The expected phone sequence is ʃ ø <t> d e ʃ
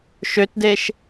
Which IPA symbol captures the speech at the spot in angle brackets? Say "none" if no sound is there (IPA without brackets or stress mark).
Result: t